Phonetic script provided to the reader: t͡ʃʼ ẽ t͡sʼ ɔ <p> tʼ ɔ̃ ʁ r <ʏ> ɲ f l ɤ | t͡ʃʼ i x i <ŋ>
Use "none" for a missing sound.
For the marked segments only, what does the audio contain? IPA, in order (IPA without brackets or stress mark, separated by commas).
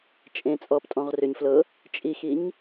p, ʏ, ɲ